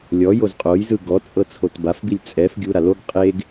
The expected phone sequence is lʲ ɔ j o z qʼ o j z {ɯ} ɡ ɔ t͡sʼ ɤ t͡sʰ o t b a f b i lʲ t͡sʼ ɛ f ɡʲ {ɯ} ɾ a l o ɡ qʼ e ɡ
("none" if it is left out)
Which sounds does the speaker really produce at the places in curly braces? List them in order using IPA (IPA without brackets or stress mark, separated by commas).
ɯ, u